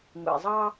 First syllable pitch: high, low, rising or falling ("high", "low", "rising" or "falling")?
low